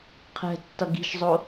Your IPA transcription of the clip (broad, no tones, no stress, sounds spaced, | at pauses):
qʰ ɛ̤ tː ʌ ɡ i̤ ʃ zˤ o